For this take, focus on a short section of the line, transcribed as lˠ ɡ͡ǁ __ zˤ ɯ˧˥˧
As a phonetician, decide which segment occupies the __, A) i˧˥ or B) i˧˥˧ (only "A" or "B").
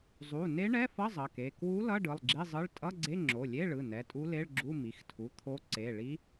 B